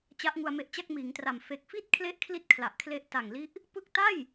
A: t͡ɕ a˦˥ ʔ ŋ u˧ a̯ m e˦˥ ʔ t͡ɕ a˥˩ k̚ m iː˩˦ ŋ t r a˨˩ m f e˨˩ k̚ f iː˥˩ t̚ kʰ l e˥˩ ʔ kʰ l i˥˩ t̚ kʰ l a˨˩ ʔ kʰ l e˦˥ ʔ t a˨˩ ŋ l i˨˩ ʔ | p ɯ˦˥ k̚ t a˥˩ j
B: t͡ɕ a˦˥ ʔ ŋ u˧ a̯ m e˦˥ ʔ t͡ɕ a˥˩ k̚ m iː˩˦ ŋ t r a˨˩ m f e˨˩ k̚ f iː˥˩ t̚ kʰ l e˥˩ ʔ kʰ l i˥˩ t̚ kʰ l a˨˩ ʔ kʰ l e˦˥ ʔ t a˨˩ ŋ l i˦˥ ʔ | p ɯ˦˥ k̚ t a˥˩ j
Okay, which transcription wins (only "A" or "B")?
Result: B